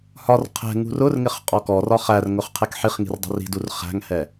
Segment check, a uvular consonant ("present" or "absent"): present